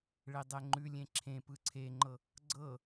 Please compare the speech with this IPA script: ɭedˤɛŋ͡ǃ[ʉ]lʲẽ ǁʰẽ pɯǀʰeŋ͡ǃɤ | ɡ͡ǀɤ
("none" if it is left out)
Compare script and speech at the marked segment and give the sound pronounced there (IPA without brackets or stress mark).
ʉ